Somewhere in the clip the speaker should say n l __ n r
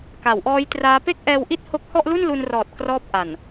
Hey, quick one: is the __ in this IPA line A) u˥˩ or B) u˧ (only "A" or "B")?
B